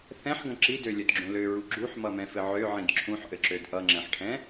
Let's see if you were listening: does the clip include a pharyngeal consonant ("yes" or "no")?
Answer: yes